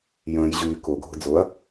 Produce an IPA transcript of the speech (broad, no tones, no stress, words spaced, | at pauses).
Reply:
jə̃ːj ʑyː kʊɡʱʊ d͡zʊɐ̯